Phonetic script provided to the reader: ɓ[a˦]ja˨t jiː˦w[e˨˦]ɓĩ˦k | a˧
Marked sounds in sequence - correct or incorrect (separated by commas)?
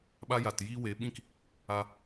incorrect, correct